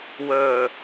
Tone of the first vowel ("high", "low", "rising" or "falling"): low